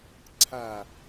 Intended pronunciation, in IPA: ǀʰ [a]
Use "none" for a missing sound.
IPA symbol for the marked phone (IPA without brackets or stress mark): a